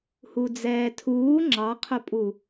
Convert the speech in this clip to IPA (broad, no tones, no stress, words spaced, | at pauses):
hud͡zɛːtʰuː ŋ͡ǁɑqʰʊpʼu